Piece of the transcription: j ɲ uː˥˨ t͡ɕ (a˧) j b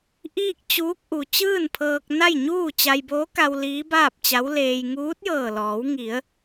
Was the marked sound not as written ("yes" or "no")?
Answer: no